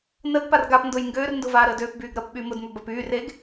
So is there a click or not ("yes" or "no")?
no